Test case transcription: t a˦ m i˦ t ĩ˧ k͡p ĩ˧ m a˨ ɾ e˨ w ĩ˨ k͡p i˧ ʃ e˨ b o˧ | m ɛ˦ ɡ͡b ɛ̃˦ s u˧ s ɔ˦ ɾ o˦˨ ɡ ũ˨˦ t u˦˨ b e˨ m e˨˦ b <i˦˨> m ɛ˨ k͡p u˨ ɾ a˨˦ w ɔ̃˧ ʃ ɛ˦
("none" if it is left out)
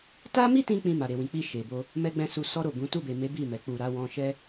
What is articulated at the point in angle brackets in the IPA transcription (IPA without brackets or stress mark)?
i˦˨